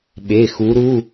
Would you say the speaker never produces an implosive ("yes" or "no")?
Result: no